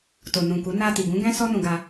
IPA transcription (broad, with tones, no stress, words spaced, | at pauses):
to˨nũ˨ku˨˦ na˧ ti˨ɡũ˨˦ɡɛ̃˦ sɔ˦nũ˧ɡa˧